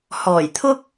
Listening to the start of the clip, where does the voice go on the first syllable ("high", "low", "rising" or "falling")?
low